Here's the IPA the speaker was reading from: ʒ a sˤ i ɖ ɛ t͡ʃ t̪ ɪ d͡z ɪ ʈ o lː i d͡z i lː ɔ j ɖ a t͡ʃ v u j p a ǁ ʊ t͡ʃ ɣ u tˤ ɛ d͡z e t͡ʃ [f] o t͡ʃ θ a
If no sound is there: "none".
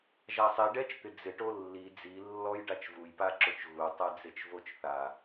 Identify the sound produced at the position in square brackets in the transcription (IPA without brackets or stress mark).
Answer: v